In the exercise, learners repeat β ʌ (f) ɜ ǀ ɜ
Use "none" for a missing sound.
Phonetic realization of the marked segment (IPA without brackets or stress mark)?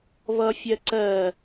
fʲ